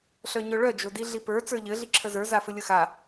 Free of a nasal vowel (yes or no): yes